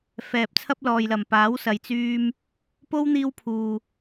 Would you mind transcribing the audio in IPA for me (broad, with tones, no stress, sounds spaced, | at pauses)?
f ɛː˨ p̚ t͡sʰ ɐ˥ p̚ l ɔː˨ j l ɐ˨˩ m p aː˨˥ w s ɐ˨ j t͡s yː˧ m | p o˥ w n̪ iː˥ w pʰ uː˨